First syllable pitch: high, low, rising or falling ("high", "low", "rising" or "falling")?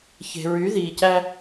low